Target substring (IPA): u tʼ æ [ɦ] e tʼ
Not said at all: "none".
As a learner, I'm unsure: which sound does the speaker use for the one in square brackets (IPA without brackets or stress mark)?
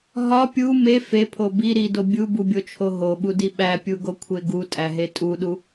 ɦ